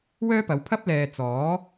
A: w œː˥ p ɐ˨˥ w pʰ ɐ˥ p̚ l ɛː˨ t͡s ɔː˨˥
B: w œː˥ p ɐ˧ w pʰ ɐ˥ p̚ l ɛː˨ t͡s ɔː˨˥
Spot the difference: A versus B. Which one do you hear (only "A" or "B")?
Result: A